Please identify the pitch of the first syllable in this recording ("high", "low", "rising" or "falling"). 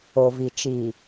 low